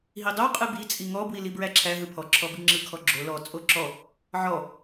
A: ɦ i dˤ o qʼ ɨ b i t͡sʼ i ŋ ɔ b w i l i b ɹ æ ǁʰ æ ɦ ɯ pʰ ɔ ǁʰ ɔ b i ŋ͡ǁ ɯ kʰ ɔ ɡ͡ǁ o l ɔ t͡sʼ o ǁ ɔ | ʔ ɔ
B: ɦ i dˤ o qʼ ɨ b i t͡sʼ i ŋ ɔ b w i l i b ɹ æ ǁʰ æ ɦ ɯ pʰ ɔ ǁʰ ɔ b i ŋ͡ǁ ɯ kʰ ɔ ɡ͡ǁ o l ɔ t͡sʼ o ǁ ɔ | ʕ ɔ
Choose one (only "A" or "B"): B